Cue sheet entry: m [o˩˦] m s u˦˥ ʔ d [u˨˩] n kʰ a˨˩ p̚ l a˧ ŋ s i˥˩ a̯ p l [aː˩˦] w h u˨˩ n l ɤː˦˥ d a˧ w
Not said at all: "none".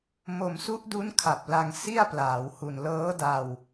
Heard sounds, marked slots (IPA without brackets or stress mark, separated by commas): o˧, u˦˥, aː˩˦